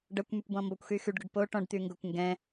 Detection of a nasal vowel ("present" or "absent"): present